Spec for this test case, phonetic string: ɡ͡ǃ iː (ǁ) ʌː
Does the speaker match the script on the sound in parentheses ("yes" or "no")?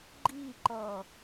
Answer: no